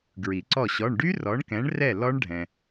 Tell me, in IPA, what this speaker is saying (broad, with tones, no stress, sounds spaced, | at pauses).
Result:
ɡ ɹ i˨˩˦ ǀ ɔ˥˨ ɕ ɔ˧˥˧ ɳ ɖ y˦˥ r ɔ˨˦ ɳ k ɛ̃˨˦ ɳ r ɛ˥˨ l ɔ˦˥ ɳ ɖʱ ɛ̃˨